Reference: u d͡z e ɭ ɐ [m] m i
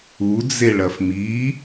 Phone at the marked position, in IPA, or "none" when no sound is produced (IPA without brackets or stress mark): f